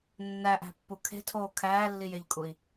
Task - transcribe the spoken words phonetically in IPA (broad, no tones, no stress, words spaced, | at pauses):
nːæʔæ̤pːu kʰe̤tʰoː kʰæːlːijeʎkʼui̯